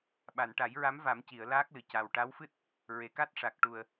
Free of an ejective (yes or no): yes